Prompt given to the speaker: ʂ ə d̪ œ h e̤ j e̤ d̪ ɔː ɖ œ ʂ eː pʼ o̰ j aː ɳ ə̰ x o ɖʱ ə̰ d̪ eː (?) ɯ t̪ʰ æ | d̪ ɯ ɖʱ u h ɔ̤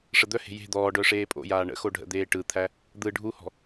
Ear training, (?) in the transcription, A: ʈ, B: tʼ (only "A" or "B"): A